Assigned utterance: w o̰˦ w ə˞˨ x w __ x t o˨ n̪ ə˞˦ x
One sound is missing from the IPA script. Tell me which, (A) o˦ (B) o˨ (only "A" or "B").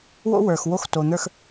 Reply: A